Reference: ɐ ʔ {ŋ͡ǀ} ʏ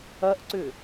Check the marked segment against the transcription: incorrect: ǀ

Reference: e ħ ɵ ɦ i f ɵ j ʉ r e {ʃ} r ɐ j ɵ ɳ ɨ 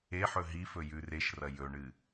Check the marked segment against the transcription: correct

